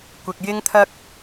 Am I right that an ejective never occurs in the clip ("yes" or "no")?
yes